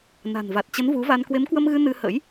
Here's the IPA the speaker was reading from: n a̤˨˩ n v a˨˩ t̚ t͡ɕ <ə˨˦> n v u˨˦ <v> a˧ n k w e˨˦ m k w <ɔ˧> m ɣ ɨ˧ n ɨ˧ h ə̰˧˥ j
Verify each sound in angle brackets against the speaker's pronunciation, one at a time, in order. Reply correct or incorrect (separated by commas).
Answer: correct, correct, incorrect